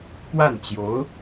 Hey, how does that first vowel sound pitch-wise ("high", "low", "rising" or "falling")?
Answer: falling